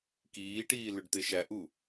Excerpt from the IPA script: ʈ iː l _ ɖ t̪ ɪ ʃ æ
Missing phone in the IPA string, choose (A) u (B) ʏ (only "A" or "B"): B